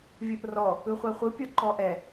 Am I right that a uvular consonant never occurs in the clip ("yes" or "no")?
no